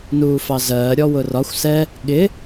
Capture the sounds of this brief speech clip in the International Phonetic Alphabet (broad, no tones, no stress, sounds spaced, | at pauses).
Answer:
n uː f ɑ z ɜː ɾʲ ɔ w ʊ r ɒ xʷ s ɛ | ɠ ɪ